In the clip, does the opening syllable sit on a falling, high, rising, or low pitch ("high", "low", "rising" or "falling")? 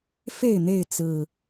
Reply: falling